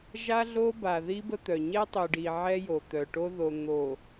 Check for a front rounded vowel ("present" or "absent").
present